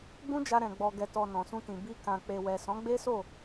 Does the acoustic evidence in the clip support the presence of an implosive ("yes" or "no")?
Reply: no